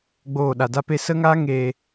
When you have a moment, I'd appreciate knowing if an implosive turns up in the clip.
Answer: yes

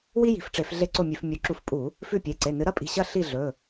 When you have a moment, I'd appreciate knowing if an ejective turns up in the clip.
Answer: yes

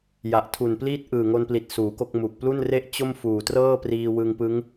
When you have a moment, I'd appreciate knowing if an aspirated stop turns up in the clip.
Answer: yes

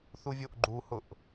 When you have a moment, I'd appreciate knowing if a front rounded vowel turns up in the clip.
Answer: no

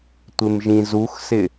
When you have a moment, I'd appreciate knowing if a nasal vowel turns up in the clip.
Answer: yes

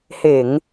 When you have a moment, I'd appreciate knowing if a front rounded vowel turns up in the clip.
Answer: no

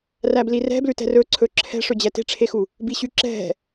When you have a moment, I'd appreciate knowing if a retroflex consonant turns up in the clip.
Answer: yes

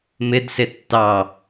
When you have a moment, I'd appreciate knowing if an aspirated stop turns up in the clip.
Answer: no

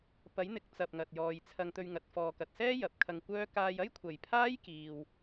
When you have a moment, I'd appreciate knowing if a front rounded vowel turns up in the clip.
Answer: yes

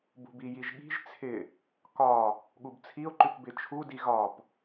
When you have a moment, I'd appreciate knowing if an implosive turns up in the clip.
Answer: yes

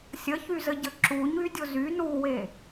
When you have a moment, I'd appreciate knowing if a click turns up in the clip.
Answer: yes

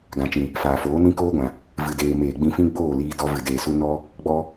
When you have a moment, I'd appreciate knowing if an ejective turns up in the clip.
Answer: no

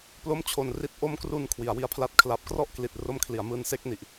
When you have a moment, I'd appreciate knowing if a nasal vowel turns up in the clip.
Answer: no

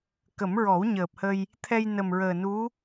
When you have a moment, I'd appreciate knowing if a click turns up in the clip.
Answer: no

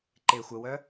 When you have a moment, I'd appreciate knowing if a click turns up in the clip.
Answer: yes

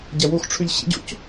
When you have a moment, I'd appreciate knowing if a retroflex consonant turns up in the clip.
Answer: yes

